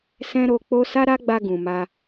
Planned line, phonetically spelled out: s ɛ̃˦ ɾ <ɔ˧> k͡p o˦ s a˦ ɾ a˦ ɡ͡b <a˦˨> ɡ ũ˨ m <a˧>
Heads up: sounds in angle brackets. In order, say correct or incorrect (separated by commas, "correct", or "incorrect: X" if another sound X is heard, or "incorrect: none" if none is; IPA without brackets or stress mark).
incorrect: o˧, incorrect: a˧, correct